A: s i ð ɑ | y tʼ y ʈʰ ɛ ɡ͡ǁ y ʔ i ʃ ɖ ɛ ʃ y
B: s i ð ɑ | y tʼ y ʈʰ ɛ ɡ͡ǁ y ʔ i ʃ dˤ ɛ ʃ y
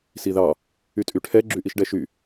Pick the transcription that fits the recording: A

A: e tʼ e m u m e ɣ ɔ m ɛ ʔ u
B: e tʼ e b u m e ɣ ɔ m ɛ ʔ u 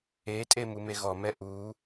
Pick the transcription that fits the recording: A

